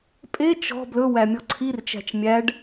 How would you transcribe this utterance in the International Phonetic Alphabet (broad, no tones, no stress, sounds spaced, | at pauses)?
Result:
pʼ e t͡ʃ ɔ̤ b l ɵ w æ mʲ ɔ ǀʰ i r t͡ʃ æ̤ t͡ʃ mʲ æ ɖ